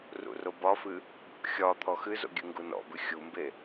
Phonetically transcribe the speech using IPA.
rṵrobɒfɨ | xʲɒ t̪ʰɔxɨzo̰ ɡʲɨŋɡunɔ̰bɨ xʲumbe

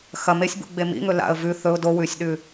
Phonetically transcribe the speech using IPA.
xɐ mesʲbṵ ɡ͡bemḭŋɵ la̰ə̯ vʉ θɵʊ̯ do wʉsʲɗʉ

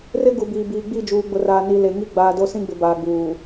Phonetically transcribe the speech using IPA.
rɪ˦ ɡu˨biː˨biː˨ ɡ͡bi˦˨d͡ʒuː˨ɡ͡bʊ˨raː˨ ni˨ le˨ŋi˦ ɡ͡baː˨do˦sĩ˦ɡ͡bɪ˨ baː˨ɡ͡buː˨

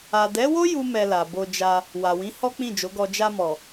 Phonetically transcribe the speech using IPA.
a˨dɛ˨˦wo˦ ju˦mɛ˧la˨ bo˧d͡ʒa˧ | wa˨wĩ˨˦ hɔ˦k͡pĩ˦˨d͡ʒo˨˦ɡɔ˧ d͡ʒa˧mɔ˨

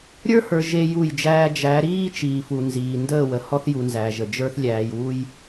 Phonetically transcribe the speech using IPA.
ɾʲə˞˦hə˞˨ ʒe˦ju˦˨jd͡ʒæː˦ d͡ʒæ˨˦ ɾiː˦t͡ʃiː˨fu˨nziː˨ ndəː˦˨wə˨hɔ˦θju˨ nzæ˨ʒə˨d͡ʒə˞˦θ lʲæː˨jwu˦j

